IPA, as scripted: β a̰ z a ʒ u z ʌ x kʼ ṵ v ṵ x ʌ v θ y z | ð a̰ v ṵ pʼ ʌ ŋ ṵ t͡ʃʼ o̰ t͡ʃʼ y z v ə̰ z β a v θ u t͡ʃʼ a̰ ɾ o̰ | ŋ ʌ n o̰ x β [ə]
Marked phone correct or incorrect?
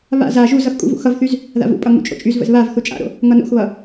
incorrect